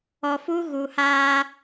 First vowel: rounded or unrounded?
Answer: rounded